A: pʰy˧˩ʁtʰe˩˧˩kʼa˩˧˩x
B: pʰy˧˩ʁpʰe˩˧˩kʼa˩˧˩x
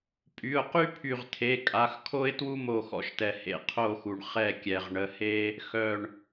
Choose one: A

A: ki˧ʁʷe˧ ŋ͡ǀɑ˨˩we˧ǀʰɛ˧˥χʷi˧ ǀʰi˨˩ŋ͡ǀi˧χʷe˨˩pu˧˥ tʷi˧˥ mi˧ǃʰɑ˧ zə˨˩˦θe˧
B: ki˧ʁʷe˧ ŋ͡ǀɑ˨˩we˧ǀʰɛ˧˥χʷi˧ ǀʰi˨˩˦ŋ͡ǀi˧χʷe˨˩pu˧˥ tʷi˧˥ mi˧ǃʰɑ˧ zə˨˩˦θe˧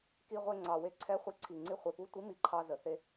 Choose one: A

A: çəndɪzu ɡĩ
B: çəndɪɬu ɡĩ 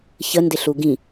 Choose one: B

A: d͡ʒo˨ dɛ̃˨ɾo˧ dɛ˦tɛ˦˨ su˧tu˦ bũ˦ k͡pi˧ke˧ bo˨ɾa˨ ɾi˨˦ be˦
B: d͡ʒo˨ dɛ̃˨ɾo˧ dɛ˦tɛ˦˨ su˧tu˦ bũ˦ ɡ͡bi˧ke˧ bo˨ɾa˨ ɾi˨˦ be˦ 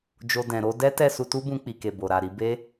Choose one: A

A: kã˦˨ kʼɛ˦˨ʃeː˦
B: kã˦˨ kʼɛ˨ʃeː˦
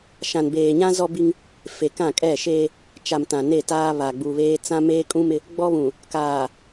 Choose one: A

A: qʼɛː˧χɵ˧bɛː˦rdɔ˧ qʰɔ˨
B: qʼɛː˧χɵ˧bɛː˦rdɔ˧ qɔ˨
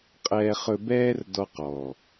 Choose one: B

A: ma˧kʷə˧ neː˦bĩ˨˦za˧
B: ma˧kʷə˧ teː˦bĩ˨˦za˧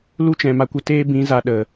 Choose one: B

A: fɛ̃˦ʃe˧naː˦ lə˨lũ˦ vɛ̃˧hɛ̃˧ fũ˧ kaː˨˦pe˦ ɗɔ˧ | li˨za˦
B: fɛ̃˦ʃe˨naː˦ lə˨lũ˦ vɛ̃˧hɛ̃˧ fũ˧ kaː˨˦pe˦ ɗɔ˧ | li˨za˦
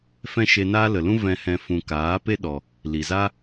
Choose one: A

